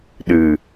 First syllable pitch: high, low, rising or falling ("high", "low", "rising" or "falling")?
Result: low